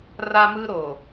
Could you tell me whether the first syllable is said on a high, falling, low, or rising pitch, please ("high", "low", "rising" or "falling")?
high